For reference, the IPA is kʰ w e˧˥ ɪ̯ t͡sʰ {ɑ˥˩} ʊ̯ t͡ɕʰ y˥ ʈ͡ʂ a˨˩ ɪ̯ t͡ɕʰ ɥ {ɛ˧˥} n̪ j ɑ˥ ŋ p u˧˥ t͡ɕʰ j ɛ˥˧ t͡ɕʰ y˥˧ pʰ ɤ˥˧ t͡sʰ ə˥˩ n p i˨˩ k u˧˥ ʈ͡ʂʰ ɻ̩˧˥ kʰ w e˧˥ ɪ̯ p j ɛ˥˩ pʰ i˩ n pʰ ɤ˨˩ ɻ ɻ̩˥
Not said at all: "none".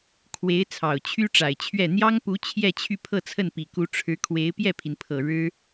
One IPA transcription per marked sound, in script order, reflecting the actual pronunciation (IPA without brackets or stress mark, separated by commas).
ɑ˨˩, ɛ˥˩